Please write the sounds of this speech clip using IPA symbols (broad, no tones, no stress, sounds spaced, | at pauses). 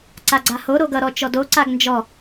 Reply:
ǀ a ɡ͡ǀ a h o ɾ o ɡ ʌ ɾ ɔ t͡ʃ ɔ d o ǀ a ɡ n d͡ʒ ɔ